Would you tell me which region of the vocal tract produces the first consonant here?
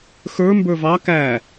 velum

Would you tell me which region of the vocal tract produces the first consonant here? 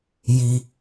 palate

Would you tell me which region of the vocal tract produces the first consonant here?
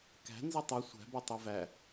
velum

